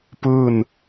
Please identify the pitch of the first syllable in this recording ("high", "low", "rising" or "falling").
falling